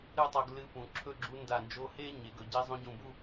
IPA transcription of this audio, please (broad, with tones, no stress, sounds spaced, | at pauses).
ɾ ɨ˥˧ tˤ o˧ ɡ l ɨ˧˥ p ũ˩˧ ǁʰ ɵ˥˧ ɡ͡ǁ u˧˥ n d a˧˩ n d͡ʒ o˧˥ h e˥ ɲ e˩˧ ɡ ɵ˩˧ ɟ i˧˥ zˤ õ˧˥ ɟ ũ˧˩ b u˥˧